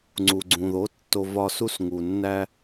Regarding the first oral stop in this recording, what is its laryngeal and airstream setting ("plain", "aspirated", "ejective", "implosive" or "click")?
click